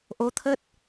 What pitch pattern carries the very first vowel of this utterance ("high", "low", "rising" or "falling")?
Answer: rising